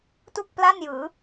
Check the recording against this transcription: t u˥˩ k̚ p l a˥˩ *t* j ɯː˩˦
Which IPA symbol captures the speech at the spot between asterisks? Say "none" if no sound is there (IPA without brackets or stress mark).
n